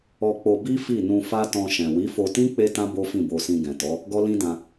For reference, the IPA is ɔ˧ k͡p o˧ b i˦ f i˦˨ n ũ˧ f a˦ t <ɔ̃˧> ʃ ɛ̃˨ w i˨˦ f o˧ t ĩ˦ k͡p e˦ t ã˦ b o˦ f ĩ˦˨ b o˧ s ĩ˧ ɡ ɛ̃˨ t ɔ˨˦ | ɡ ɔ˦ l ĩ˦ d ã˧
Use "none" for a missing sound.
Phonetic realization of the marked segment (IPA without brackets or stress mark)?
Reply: ɔ̃˧